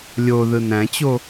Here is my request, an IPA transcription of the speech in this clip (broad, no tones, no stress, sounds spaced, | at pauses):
lʲ o ð ɯ n æ̃ t͡ɕ o